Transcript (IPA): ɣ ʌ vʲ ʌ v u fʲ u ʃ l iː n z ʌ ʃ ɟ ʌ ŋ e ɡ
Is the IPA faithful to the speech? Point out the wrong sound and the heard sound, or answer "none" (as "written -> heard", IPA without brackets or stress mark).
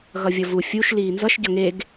none